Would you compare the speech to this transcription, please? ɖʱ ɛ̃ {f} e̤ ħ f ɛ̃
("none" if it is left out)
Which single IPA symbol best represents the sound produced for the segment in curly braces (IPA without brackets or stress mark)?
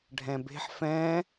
b